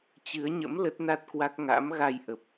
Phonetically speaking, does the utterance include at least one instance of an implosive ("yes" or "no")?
no